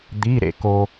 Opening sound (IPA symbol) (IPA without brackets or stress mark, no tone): d̪